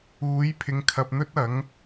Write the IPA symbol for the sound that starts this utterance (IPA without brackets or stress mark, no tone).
uː